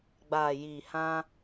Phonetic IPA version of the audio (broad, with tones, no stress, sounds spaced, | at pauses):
ɡ͡b aː˨ j iː˨ h ã˧